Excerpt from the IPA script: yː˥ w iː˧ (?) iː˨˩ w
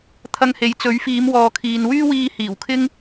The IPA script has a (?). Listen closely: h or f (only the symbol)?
h